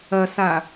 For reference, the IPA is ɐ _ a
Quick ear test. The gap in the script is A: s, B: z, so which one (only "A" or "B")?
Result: A